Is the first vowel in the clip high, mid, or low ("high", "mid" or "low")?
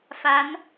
low